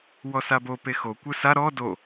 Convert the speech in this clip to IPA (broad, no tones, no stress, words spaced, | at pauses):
wɔsabo pexokʷɯ sa ɾɔ do